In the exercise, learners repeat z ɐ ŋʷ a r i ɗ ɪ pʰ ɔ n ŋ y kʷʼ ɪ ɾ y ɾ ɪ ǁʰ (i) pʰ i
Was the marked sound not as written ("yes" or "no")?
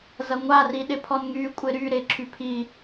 yes